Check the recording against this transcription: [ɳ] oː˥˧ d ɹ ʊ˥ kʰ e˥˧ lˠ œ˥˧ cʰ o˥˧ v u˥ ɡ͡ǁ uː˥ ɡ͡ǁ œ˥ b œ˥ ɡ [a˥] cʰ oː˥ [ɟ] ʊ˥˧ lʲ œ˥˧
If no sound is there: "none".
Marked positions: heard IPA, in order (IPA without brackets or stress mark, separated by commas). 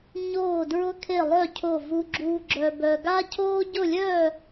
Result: ɲ, a˥, ɟ